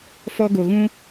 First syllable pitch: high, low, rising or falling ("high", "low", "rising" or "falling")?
high